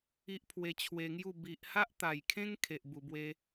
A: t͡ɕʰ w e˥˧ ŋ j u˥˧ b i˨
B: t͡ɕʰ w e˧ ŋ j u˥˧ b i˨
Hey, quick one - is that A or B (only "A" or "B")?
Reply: B